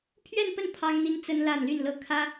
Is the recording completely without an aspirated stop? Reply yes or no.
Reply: no